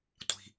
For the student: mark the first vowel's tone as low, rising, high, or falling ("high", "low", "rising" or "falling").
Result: low